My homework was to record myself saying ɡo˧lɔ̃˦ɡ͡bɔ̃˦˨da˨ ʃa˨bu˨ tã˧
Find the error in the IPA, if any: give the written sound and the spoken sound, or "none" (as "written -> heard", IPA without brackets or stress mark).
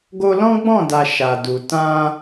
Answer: b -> d